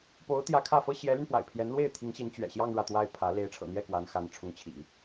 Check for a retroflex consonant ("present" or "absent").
present